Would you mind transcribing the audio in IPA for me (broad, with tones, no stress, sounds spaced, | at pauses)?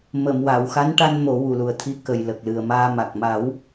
m ə˨˩˨ m w a˨˩˨ w x a˧˥ n ʈ a˧ n m o˨˩˦ w u˨˩ l u˨˩ ə̯ t̪ʰ i˧ k ə˨˩ j l ə˨˩ k̚ l ɨ˨˩ ə̯ m aː˧ m a˨˩ k̚ m a˨˩˦ w